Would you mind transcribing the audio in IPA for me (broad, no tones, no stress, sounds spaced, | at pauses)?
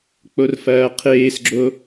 k͡p o r f ɐː qʰ eː s ɡ͡ǁ o